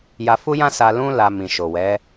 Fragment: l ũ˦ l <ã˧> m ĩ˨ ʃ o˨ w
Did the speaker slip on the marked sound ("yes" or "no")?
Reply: yes